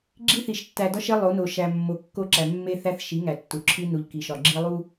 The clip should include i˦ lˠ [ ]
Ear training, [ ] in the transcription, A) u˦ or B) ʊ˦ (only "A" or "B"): A